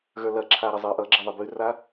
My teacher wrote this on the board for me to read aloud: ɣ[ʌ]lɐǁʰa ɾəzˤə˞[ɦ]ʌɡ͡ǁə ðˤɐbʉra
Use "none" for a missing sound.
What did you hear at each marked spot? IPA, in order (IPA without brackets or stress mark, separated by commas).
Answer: ə˞, ʔ